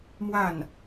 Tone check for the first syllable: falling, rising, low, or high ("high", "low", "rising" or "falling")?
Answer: falling